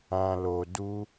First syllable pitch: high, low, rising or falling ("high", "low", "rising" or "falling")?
low